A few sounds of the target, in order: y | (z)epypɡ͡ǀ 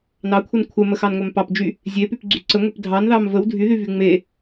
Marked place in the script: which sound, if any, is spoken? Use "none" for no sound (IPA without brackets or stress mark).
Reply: zʲ